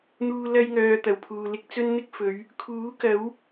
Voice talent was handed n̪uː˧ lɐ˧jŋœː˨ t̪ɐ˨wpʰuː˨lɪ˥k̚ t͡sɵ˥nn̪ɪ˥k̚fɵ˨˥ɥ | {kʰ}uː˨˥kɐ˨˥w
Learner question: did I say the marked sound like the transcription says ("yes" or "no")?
yes